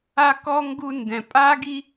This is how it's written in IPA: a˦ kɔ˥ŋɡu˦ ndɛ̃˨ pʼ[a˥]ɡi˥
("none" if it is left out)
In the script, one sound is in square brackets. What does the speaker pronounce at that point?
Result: a˥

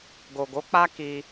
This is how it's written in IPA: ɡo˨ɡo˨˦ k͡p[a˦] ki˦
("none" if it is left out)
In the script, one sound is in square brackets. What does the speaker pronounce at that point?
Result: a˦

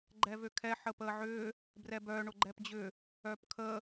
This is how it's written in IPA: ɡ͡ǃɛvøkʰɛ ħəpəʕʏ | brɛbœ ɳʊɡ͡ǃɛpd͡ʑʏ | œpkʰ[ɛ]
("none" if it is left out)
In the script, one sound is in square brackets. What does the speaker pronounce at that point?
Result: ə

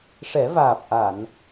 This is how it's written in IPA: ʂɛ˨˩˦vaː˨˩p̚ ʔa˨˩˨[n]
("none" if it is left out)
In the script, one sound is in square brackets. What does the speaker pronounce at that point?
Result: n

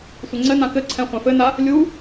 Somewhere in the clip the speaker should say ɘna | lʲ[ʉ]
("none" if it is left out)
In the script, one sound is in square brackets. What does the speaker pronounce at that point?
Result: u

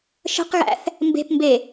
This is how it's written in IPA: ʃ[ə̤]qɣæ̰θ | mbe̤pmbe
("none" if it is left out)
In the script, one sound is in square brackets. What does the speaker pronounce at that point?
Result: ə̤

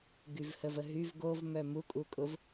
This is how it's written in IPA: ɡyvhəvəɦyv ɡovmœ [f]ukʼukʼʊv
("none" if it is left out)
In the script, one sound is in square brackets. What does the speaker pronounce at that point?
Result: m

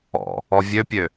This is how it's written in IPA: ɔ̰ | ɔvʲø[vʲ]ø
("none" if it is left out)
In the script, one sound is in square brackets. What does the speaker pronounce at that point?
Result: pʲ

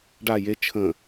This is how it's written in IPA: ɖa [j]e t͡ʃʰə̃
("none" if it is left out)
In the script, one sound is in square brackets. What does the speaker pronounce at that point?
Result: j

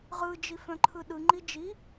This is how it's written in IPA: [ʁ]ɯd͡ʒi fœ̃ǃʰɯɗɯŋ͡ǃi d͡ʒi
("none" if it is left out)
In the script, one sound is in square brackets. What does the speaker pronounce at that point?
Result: ʁ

